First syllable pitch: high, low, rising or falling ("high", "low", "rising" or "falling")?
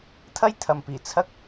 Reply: high